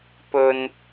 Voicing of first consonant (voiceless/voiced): voiceless